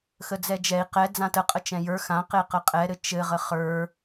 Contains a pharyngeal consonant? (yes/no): no